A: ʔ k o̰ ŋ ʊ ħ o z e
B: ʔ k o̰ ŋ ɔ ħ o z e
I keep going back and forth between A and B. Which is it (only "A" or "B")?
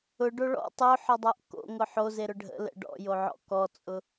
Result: A